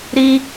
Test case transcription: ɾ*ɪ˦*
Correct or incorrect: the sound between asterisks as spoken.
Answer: incorrect: i˦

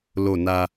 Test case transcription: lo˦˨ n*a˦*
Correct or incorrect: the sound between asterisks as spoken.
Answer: correct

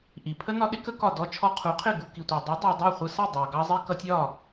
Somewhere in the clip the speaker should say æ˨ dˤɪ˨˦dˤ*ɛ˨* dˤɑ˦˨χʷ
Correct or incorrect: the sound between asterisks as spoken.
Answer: correct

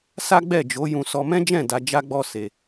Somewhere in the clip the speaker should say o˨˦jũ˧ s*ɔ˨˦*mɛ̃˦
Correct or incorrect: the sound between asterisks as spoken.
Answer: incorrect: ɔ˧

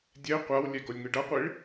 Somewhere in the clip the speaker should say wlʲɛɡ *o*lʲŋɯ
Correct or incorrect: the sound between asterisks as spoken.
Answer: correct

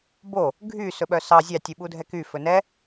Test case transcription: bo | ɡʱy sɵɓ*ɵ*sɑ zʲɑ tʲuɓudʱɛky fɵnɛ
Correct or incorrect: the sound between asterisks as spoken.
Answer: incorrect: œ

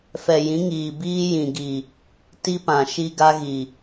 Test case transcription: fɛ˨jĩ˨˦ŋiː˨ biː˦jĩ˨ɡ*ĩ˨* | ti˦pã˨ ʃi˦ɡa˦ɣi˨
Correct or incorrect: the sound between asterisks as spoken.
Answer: incorrect: i˨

